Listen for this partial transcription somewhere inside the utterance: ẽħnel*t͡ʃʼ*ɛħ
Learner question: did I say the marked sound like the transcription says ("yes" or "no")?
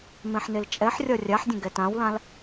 yes